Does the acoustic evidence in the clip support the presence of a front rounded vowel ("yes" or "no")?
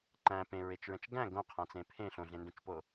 no